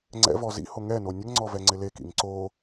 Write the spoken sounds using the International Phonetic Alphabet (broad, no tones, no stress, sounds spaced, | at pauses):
ŋ͡ǀ ɛ̰ v ɔ z ḭ h o ŋ ɛ n o nʲ ə ŋ ŋ͡ǀ ɔ v ɛ ŋ͡ǀ ɪ l e k ḭ ŋ ǀ o